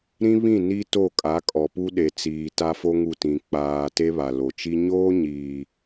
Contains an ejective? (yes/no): yes